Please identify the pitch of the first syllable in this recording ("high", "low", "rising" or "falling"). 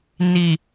low